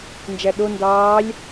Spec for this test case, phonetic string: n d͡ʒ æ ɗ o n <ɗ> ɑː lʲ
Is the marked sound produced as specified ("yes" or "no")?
no